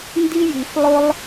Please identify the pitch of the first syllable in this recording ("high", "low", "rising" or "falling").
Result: high